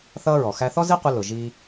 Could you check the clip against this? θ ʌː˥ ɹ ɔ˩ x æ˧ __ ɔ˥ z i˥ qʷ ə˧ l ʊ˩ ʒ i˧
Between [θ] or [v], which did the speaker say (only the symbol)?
θ